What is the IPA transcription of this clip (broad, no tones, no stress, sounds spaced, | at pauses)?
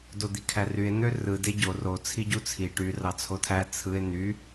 d o d̪ i kʰ æ r y e̯ n̪ ø r ɯ d e ɟ o r o t͡sʰ i ɟ u t͡sʰ i ʈ y r ɑ t͡sʰ o tʰ æ t͡sʰ ɯ e̯ n̪ y